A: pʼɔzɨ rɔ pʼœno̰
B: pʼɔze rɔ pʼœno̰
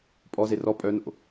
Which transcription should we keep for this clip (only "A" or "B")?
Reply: B